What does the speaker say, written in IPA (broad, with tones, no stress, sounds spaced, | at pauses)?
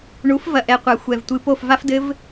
ɳ u˩˥ f v ɐ˧ ʔ ɛ˩˥ qʷ a˨˩ xʷ ɛ˨˩ v tʷ ɨ˩˥ p o˥˩ f v a˦˥ f d ɘ˦˥ v